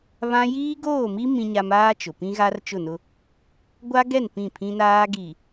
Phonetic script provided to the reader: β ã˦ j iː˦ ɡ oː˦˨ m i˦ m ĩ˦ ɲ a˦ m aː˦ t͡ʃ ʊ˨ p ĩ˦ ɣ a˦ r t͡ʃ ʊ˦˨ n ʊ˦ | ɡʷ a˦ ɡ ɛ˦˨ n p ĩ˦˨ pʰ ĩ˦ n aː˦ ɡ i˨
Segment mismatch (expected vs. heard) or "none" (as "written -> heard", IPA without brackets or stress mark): none